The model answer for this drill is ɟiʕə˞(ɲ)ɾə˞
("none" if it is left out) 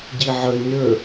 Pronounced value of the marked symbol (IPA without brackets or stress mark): ɲ